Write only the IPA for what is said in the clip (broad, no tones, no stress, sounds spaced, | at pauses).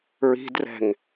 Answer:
ɹ i̤ d r ɛ̤ ŋ